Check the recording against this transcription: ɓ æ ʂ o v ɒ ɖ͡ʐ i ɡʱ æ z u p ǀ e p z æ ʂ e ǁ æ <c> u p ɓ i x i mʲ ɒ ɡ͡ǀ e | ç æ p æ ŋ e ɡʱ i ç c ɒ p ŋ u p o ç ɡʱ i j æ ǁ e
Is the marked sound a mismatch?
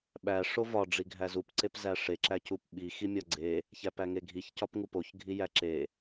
no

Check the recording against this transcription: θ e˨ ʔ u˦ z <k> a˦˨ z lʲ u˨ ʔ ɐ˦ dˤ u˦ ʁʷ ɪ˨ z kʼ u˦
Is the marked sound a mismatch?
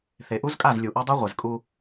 yes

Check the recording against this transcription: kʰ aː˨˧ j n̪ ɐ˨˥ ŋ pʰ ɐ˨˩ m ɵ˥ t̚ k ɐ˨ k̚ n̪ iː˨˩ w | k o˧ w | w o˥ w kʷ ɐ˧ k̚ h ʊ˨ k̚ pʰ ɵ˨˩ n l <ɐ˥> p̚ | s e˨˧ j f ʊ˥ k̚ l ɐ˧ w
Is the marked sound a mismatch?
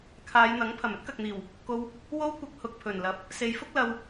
yes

